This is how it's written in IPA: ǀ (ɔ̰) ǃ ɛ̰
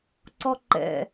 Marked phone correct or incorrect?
incorrect